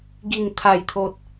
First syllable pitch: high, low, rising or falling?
low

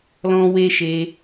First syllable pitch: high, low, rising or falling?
high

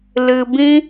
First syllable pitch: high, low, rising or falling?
low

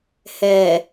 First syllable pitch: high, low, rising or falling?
low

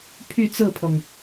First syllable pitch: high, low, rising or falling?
falling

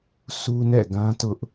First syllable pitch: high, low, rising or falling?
high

